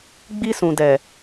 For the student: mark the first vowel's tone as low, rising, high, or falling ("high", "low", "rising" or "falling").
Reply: high